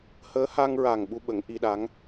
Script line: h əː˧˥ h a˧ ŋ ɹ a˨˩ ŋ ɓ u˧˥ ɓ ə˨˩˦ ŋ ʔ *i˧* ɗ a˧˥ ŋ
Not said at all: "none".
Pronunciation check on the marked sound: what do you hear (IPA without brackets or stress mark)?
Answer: i˧